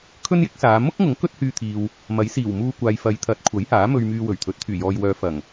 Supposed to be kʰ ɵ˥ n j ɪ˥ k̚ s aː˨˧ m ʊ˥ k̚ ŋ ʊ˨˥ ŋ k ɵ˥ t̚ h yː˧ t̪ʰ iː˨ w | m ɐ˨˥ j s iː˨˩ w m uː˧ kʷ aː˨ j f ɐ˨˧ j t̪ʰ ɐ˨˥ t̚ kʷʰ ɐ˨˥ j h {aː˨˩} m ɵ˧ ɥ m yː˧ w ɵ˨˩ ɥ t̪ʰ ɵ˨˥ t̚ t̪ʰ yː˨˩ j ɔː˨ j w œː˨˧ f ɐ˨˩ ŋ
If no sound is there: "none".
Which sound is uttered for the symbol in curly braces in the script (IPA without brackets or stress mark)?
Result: aː˨˥